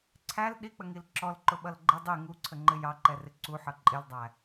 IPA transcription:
ǀʰ æ l ɗ i k͡p ə ŋ i l ǁ ɔ l ǃ ʊ ɓ ʌ l ɡ͡ǃ ɪ dˤ i ŋ u ǀʰ ə ŋ͡ǃ ɪ j ɑ ǃ ɛ r ɪ ǀ u ħ ʌ ǃʼ ɪ l dˤ æ

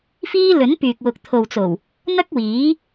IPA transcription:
f iː˥ l ɵ˨˥ n p yː˨ k̚ w ʊ˨ k̚ t̪ʰ o˨ w t͡s o˨˩ w | n̪ ɐ˥ k̚ w iː˨˥

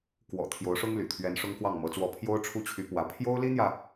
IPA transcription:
k w ɔ̰˨˩ t̪ʰ j o˧˥ ʊ̯ ʂ ʊ˥ ŋ l y̰˨˩ t̪ʰ ɥ ɛ˧˥ n ʂ ʊ˥ ŋ k w ɑ˥˩ ŋ m ɤ˧˥ t͡s w ɔ˥˩ pʰ j o˥ ʊ̯ ʈ͡ʂʰ u˥˩ t͡ɕʰ y˧˥ p w ä˧˥ pʰ j o˥ ʊ̯ l i˥ n̪ j ä˨

